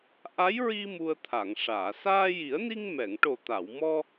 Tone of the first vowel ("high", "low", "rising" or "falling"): rising